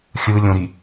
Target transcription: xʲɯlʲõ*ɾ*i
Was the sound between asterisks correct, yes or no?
yes